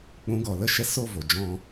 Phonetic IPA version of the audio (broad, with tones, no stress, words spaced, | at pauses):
k͡pũ˨˦ ɡɔ˨lə˦˨ ʃɛ˧so˦˨ vo˨ d͡ʒɔ̃˧